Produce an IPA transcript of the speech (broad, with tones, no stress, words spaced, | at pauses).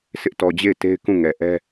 sʰɪ˦ʔtɔ˨d͡ʑe˦˨ɪ̯ te˦ɪ̯kũ˦˨ŋɛ˨ʔɛ˦